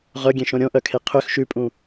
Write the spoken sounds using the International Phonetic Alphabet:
ʁ œ ɡʲ ẽ ʃ õ ɾʲ õ ʔ œ kʰ e qʰ ø x ʃ ʉ pʼ ũ

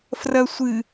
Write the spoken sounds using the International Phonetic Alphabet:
f r ɐ sʷ ɨ

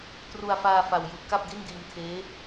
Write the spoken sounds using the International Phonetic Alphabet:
t r u˧ a̯ f aː˧ f a˧ w j ɯː˦˥ p̚ k a˥˩ p̚ d i˥˩ n d iː˧ m tʰ eː˦˥

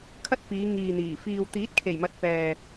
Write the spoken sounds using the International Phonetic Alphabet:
kʰ ɐ˥ t̚ f iː˨˧ ŋ iː˨ n̪ iː˨˩ f iː˨ w t̪ iː˨˥ t̚ kʰ e˨˩ j m ɐ˨ t̚ p ɛː˨

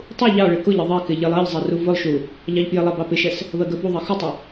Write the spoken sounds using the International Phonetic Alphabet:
tˤ u ʎ ɑ ɭ ɪ k ʊ ʎ ɪ ðˤ ɛ k ɪ ʎ ɪ lˠ ɜ ʎ zˤ ɛ r u v ʊ lˠ ʃ u | ʎ ɑ ʎ p j ɪ lˠ ɑ b ɑ p ɪ ʃ ɛ s | β ɜ ɡ ɜ b u ðˤ ɜ x ʊ tˤ ɪ

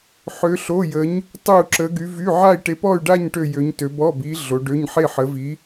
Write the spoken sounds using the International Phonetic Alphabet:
ħ ø˧˥ ɬ o˧˥˧ j ə˧˥ ɲ | tˤ ø˥˧ u̯ ǁ ə˧˥ ɡ y˧˥ v y˧˥˧ ʕ a˥˧ i̯ ʈ e˧˥ p ɔ˥˧ y̯ ɖ a˥˧ ɲ ʈ ø˥˧ j ø˧˥ ɲ t ø˧˥ b ɔ˧˥˧ b i˧˥ ɮ o˧˥ ɖ ø˧˥˧ ɲ ħ e˥˧ ħ ə˧˥ v i˧˥

